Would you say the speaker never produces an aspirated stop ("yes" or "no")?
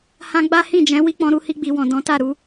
yes